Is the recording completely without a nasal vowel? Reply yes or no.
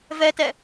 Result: yes